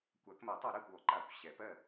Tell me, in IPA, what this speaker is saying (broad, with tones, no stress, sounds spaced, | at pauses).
kʷ a˨˩˦ k m ɜ˨˩˦ tˤ ɛ˨˩˦ ɾ ɜ˥˩ kʷ ɔ˨˩˦ ǃ a˨˩˦ kʷ ɕ ɛ˨˩˦ p ɜ˥˩